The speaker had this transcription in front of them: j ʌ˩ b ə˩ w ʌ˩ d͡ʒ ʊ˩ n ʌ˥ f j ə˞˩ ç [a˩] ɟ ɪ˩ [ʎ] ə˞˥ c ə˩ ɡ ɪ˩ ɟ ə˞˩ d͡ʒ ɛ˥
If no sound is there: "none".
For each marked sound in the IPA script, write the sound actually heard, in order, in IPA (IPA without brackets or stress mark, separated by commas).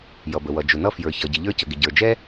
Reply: ʌ˩, ʎ